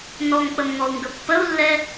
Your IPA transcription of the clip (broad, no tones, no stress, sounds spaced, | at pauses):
n ɔ ŋ k͡p ə m ŋ ɔ u̯ ŋ ɡ ə pː ə u̯ lː ɛ